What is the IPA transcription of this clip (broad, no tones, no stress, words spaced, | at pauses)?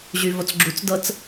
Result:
ʑyvot͡sɡ͡ǁut͡sdɤt͡s